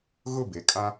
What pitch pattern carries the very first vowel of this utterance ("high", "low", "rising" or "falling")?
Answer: falling